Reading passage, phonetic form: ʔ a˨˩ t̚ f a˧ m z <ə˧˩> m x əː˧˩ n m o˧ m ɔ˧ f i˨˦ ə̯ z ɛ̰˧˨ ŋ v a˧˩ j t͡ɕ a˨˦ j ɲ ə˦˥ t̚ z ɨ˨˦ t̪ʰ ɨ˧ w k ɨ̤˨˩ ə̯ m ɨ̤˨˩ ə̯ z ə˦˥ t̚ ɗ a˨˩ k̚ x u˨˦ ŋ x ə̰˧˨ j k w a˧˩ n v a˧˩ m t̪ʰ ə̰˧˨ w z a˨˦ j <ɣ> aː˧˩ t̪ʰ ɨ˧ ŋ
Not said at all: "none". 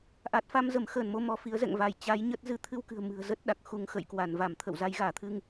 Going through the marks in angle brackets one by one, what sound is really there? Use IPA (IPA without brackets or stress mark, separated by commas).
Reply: ə˧˩, ɣ